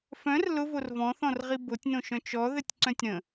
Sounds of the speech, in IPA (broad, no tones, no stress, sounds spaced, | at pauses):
f œ̃ r l ʊ v o r v ɔ̃ θ ɔ̃ r ʁ i b o tʲ n õ ʃ œ̃ t͡ʃ ɔ ð ɘ tʲ ǀ œ̃ tʲ ɾ ə̃